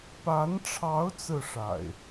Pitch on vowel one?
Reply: rising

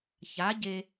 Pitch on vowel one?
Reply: rising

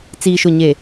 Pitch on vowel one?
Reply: low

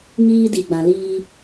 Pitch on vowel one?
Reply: high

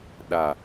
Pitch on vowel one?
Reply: low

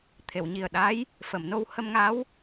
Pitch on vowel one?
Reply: low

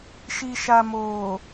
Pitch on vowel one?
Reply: low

